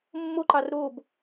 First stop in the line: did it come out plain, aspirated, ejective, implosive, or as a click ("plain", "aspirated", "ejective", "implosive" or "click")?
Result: click